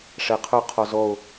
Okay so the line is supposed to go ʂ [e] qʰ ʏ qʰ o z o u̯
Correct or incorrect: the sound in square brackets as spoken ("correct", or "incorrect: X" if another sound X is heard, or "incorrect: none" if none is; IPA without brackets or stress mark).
correct